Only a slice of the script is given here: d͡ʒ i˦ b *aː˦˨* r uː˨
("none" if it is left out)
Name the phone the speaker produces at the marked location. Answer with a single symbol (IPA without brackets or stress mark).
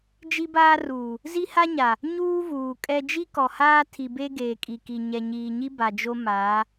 aː˦